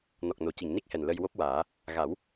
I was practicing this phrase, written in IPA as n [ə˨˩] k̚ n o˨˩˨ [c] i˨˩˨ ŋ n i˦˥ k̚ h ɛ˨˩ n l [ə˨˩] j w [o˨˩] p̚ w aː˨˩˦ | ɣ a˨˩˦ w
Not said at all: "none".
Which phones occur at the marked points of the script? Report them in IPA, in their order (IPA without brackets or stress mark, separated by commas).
ɔ˨˩, c, ə˧, o˦˥